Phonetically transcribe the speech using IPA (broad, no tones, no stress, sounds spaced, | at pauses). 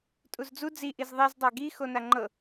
tʼ u z d͡z u d͡z i ʔ i z ðˤ i z dˤ æ ɡ i x o n a ŋ͡ǃ ɤ